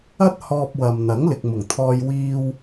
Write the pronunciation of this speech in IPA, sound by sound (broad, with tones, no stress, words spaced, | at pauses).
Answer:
ɐ˥t̚ hɔː˧p̚ wɐ˨mn̪ɐ˨˥ŋ lɪ˨k̚mʊ˨˩ŋt̪ʰɔː˧j wiː˧w